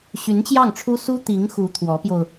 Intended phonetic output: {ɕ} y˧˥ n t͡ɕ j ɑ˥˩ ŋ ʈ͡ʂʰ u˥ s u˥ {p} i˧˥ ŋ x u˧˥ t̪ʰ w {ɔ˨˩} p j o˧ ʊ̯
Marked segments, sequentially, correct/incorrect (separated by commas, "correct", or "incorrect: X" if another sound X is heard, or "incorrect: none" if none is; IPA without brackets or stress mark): correct, incorrect: t̪, incorrect: ɔ˧˥